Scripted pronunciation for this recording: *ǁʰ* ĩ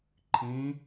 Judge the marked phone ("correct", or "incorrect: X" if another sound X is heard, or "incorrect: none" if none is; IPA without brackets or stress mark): incorrect: ǃʰ